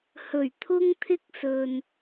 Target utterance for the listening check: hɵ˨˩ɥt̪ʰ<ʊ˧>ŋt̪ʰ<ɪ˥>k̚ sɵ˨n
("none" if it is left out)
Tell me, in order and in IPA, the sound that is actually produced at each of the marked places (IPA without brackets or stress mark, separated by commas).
ʊ˥, ɪ˥